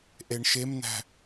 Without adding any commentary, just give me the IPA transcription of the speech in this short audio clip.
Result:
ʔ e ɳ ʃ e m n æ̤

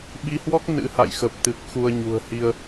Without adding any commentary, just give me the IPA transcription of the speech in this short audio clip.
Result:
ɓ i˧ h w ɔ˦˥ k̚ n ɨ̰˧˥ h a̰˧˨ j x ə˨˩ p̚ t̪ ɨ˨˩ k̚ x u˧ ə̯ ɲ ṳ˨˩ ə̯ h i˧ ə̯

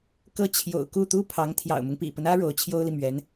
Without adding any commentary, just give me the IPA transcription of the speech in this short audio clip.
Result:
k ɤ˥˩ t͡ɕʰ j o̰˨˩ ʊ̯ k u˥˩ t̪ u˥ pʰ ɑ˧˥ ŋ t̪ʰ j ɑ̰˨˩ ʊ̯ m ʊ˦ ŋ p ḭ˨˩ p ə˦ n ä˥ ɻ o˧˥ ʊ̯ t͡ɕʰ j o˥ ʊ̯ l i˨ m ɥ ɛ˧˥ n

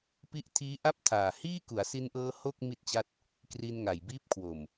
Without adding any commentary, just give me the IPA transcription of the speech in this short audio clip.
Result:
p i˦˥ ʔ tʰ iː˦˥ ʔ a˥˩ p̚ tʰ aː˨˩ h iː˥˩ k u˩˦ a̯ s i˧ n ʔ ɤː˧ h o˥˩ k̚ m i˥˩ t̚ t͡ɕ a˥˩ t̚ | k r i˧ n ŋ a˨˩ j b iː˦˥ p̚ kʰ w o˨˩ m

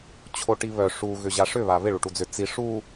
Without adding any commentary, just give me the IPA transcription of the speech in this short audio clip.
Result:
t͡ɕʰ o ʈ i β œ ʂ u ɣ ʏ ʑ a ʂ ʏ β a β ɪ ɭ u ʈ u d͡z ʏ t͡s i ʂ u

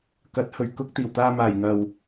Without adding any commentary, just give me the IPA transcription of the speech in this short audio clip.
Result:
k ɐ˨˥ t̚ h ɵ˨˩ ɥ k ʊ˥ k̚ t̪ iː˨˩ w t̪ aː˧ m aː˨˩ j ŋ ɐ˨ w

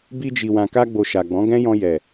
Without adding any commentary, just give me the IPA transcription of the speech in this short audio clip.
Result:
b i˧ d͡ʒ i˨ w ã˨ k a˧ ɡ͡b o˨ ʃ a˨ ɡ͡b ɔ̃˨˦ ɡ ɛ̃˦ j ɔ̃˧ j ɛ˨

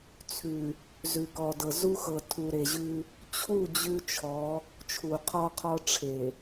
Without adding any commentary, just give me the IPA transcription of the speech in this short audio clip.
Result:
t͡sʰ ʉ˨ | z ʉ˨ k ɔ˨ d ɤ˨ z u˦ x ɤ˨ tʰ u˨ ɾ e˨ ʑ ʉ˦ | t͡ɕʰ u˦˨ d͡ʑ ʉ˦ t͡ʃʰ ɔ˨˦ | t͡ʃʰ u˨ qʰ ɔ˦ qʰ ɔ˦ ʈ͡ʂʰ e˨

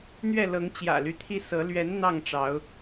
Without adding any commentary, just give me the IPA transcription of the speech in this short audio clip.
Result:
n̪ ɥ ɛ˥˨ l ɤ˨˦ ŋ t͡ɕ j ä̰˨˩ l y˦ t̪ʰ i˦ s ɤ˨˦ l ɥ ɛ˨˦ n n̪ ɑ˥˨ ŋ ʈ͡ʂ ɑ˨˦ ʊ̯

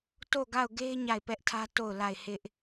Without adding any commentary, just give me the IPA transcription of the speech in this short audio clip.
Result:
t o˦˨ ɡ a˦˨ ʊ̯ ɡ e˦ ɪ̯ ɲ a˦˨ ɪ̯ p ɛ˦ ʔ tʰ ä˦ t o˦˨ ʊ̯ l a˦˨ ɪ̯ h ɪ˦ ʔ

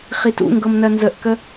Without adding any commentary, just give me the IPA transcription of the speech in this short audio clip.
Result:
χ i t ṵ ŋ ɡ ɤ m n ɜ n z ə ʔ k ə

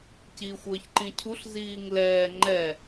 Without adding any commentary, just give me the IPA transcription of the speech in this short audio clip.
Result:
c iː xʷ əː ç ǃ ĩ cʰ u ɬ z iː ŋ l ɛː ŋ͡ǃ ɛ

